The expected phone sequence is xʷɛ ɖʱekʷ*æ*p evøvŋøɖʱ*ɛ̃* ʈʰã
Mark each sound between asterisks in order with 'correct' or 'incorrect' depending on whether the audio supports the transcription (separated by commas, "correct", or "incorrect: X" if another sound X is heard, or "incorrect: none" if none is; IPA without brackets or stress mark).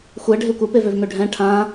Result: correct, correct